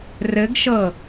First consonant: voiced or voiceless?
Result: voiced